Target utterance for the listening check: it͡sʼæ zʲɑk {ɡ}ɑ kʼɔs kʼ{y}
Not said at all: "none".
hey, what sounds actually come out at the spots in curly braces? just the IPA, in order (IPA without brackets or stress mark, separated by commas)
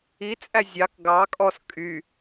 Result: ɡ, y